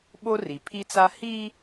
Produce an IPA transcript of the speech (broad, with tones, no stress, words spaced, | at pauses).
ɓo˦ri˨pʰi˦t͡sa˦ hi˦